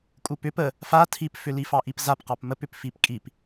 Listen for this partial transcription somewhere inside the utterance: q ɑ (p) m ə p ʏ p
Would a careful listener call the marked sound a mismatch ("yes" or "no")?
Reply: no